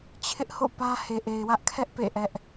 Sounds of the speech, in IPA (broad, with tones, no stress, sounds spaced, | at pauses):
t͡ɕʰ ɪ˦ ʔ h o̰˦˨ p ä˦ h e˨ ʔ e˨ ɪ̯ w ä˦ ʔ kʰ ɛ˦ ʔ p ḛ˦˨ ʔ ɛ˦ ʔ